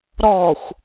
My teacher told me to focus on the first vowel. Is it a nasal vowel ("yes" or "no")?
no